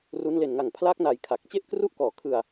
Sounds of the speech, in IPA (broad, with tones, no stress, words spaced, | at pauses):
ru˦˥n le˨˩nŋa˨˩ŋpʰlaː˦˥k̚ na˨˩j kʰa˨˩k̚ t͡ɕe˥˩ʔkru˥˩ʔkɔː˨˩kʰɯ˧a̯